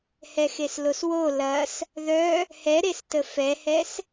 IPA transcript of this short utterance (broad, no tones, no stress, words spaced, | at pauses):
hɛxesloswo lɐs | ðœ | hɛɾestə fɛhɛs